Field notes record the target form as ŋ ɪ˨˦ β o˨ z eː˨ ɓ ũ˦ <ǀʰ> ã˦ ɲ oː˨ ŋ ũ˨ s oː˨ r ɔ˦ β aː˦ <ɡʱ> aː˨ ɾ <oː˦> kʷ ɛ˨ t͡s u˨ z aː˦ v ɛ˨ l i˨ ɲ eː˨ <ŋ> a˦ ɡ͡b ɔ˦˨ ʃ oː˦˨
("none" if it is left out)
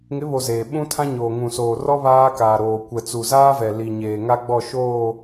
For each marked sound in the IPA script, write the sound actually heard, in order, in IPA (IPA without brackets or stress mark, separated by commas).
tʰ, k, oː˨, ŋ